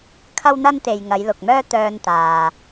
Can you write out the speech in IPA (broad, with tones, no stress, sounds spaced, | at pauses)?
kʰ ɐ˥ w n̪ ɐ˥ n t̪ e˨ j ŋ ɐ˨˧ j l ʊ˨ k̚ m œː˥ t̪ œː˧ n t̪ aː˨